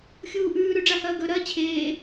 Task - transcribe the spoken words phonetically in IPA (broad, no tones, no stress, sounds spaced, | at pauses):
xʲ uː ʔ ʉː ɾ ʉ ɖ͡ʐ a h ɐː ɡ ɵ ɾ ɐː t͡ɕʰ eː